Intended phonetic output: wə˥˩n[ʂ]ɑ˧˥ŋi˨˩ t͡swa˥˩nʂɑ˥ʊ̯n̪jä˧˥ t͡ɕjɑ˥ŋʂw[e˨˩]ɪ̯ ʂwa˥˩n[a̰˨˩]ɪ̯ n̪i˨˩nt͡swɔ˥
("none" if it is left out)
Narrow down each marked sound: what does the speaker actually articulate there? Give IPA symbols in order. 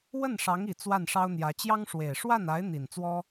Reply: ʂ, e˨˩, a˧˥

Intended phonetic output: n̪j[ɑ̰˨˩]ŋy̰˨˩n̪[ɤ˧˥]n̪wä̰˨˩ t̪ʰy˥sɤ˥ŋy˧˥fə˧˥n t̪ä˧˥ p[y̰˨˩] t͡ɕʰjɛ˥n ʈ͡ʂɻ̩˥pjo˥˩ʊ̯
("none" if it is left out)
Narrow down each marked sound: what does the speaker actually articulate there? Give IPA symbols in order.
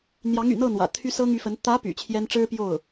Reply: ɑ˧˥, ɤ˥˩, y̰˨˩

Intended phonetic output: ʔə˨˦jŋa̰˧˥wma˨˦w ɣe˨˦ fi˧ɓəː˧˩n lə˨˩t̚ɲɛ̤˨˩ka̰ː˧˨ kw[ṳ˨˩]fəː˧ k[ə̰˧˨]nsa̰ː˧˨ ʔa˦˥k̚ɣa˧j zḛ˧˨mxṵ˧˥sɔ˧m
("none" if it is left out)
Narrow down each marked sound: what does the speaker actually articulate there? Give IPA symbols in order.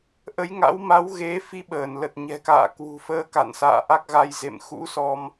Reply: ṳ˨˩, a̰˧˨

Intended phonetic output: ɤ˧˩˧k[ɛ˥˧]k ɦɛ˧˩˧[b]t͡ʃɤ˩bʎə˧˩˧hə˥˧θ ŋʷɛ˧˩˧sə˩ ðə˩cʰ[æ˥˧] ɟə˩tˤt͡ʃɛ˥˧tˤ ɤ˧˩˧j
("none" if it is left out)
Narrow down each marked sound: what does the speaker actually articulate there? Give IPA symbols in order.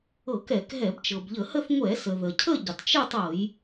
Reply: ɛ˧˩˧, b, ə˥˧

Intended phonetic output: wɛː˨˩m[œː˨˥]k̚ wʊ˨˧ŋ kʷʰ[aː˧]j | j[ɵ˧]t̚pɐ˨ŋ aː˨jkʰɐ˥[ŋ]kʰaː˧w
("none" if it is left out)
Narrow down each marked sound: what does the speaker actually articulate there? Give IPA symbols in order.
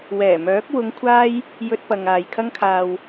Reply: œː˨˥, aː˥, ɵ˧, ŋ

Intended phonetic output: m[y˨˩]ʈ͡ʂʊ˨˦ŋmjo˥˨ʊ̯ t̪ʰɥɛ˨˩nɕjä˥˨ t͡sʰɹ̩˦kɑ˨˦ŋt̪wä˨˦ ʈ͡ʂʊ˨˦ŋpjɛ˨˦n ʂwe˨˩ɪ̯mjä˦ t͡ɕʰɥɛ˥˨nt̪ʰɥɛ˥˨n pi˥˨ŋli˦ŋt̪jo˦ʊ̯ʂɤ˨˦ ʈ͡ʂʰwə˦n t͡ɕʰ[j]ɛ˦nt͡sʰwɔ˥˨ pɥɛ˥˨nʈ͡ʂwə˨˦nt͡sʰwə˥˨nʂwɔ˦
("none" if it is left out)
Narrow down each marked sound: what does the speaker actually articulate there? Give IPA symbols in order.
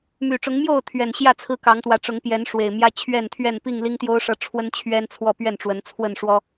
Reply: y˨˩, ɥ

